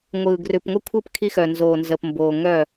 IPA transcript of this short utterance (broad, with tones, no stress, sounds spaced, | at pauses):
ŋʷ ɯː˨ ɡ r ʉ˨ p ŋʷ ə˦ kʷʰ ɯ˦˨ p kʰ i˦ x œ˨ n z oː˨ n z əː˨ p m b oː˨ ŋ œ˦˨